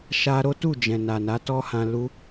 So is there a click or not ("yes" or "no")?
no